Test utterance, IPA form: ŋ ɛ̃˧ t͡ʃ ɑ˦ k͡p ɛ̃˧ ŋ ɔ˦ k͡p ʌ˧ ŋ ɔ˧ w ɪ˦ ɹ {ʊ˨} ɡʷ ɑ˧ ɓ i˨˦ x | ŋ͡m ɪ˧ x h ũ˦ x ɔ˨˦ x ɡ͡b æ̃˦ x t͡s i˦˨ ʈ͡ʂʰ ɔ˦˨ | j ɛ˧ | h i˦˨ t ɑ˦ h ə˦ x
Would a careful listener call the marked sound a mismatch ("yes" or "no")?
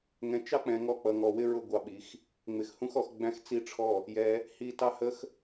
yes